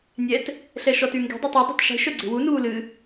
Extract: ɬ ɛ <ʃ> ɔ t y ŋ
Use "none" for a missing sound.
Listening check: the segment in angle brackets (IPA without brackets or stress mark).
ʃ